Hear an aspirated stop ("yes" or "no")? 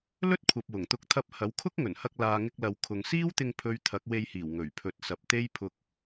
yes